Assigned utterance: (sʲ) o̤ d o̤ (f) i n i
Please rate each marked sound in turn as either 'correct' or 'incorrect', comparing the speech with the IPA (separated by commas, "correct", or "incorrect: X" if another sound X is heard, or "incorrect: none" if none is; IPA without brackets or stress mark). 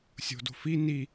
correct, correct